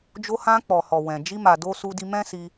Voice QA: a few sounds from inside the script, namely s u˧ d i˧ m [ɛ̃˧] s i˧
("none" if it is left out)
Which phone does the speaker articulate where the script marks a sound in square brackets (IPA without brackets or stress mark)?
ɛ̃˦